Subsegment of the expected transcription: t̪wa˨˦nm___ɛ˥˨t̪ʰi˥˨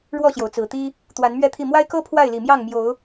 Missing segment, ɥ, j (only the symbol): ɥ